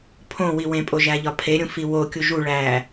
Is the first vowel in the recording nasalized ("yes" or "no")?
yes